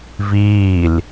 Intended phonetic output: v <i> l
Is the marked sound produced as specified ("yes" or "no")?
no